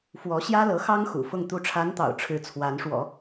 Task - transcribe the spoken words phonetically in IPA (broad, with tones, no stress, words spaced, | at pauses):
fwɔ˧˥ ɕjä˥lɤ˧˥xɑ˥ŋ xṵ˨˩fʊ˥˩ŋ t̪u˧˥ʈ͡ʂʰa˧˥nt̪ɑ̰˨˩ʊ̯ ʈ͡ʂʰɻ̩˥t͡sʰwa˧˥nʂwɔ̰˨˩˦